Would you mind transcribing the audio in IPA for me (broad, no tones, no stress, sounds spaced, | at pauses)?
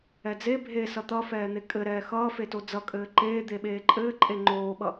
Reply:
ɛ d͡z e bʱ e s ʌ t̪ ʌ f ɛː n̪ e kʼ ɘ ɾ ɛː x ʌː f e t o d͡z ʌ kʼ ɘː ǃ eː d̪ e ɓ eː ǃʼ ɘː ǃʼ e ŋ͡ǃ oː ɓ ʌ